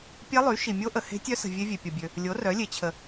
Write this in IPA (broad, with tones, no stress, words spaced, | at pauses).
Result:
pʲɛ˦˥lˠy˩˥ʃi˨mʲo˦˥ ʔə˨he̤˦˥tʲœ˦˥sə̤˨ vʲe˦˥vʲe˨pʲɔ˨bʲø˨ | lʲo˩˥rœ˩˥lʲe˩˥ t͡ɕʰə˨